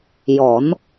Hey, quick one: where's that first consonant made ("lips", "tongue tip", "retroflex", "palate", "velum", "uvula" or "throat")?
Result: palate